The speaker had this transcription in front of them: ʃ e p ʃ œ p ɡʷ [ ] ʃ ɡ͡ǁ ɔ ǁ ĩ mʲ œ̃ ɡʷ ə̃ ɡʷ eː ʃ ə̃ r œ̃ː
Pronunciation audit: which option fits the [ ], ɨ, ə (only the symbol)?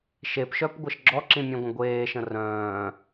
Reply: ə